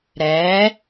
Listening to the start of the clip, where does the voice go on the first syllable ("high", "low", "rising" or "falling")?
rising